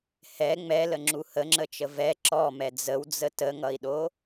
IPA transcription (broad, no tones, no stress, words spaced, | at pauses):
hɛ ŋ͡mɛləŋ͡ǁu həŋ͡ǁət͡ʃə vɛ ǁɔmɛ d͡zəwd͡zə təŋʌi̯ɗo